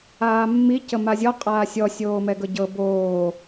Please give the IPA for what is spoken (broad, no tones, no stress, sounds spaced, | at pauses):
aː mː i c ə m a zʲ ɔ qʼ aː sʲ ɔ sʲ oː m ɛ ɡ ɤ ɟ ɤ b oː